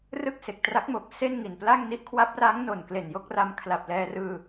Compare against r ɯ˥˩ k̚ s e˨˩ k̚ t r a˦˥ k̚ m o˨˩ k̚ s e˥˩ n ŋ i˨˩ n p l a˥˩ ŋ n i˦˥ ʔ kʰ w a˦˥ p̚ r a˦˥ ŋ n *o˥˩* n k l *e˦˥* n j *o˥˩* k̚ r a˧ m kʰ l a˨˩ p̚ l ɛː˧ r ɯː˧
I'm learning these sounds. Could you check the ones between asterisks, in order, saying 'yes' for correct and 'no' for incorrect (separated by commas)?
no, no, yes